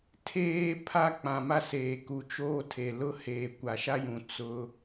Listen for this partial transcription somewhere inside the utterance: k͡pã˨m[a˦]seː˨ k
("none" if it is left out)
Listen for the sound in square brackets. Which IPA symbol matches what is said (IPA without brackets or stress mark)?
a˦